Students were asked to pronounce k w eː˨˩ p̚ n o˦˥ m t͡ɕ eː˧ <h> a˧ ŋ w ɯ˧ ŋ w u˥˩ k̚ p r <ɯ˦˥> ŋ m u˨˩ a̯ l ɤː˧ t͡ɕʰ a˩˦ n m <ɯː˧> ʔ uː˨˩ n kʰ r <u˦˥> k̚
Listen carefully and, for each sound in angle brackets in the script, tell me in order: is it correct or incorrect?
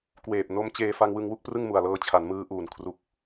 incorrect, incorrect, correct, incorrect

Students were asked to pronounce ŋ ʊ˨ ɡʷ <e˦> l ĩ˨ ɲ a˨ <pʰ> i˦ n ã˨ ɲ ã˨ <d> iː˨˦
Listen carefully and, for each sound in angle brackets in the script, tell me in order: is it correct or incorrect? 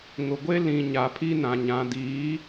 correct, correct, correct

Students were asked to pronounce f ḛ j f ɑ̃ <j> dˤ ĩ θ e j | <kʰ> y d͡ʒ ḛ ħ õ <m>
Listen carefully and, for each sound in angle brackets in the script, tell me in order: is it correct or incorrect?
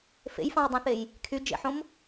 correct, correct, correct

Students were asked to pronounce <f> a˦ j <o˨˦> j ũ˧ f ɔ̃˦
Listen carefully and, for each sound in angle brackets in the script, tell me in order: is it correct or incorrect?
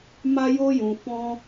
incorrect, incorrect

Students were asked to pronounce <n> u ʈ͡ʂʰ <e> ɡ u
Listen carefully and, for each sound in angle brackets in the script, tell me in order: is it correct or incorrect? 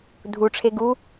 incorrect, correct

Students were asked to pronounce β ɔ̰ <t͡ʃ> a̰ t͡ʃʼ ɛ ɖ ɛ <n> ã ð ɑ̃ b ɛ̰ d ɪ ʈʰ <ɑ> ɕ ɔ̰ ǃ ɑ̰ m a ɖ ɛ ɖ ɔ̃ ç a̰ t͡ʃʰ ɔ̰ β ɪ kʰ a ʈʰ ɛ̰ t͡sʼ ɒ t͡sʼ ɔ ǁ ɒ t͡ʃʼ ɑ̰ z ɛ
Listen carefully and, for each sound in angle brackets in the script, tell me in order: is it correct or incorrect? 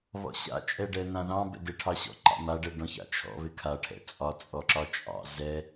incorrect, correct, correct

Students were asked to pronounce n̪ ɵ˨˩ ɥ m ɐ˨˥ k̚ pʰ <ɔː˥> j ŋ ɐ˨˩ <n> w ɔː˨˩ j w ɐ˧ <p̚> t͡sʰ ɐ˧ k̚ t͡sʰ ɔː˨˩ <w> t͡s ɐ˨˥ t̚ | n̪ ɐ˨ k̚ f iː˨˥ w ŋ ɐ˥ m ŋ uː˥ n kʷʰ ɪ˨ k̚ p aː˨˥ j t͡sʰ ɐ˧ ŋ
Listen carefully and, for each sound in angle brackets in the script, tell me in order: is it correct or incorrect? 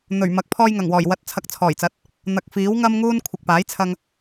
incorrect, incorrect, incorrect, incorrect

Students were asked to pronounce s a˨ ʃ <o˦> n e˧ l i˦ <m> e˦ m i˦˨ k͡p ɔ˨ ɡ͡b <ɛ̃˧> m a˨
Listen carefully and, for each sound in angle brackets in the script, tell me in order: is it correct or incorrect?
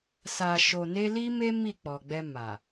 incorrect, correct, incorrect

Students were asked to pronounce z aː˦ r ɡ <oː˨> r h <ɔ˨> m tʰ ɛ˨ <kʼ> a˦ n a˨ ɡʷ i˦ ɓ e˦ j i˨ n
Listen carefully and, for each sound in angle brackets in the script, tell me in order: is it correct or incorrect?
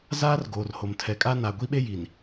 correct, incorrect, correct

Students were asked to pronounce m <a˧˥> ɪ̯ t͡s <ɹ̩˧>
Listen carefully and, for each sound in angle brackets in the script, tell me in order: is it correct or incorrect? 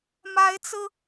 correct, correct

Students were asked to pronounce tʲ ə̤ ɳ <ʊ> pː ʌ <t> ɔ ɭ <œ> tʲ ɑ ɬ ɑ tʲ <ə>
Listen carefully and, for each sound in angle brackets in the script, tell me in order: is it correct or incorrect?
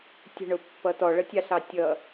correct, correct, incorrect, incorrect

